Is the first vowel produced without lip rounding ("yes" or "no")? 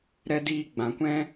yes